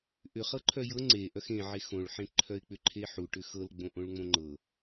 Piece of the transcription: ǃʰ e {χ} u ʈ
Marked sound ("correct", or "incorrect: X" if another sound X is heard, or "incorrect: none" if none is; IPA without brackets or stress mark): incorrect: ħ